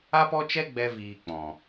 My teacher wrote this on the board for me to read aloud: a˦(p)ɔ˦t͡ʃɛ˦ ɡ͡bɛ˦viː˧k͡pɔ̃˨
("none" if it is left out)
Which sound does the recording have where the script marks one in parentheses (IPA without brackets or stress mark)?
p